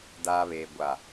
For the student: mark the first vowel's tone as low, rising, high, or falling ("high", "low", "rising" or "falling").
low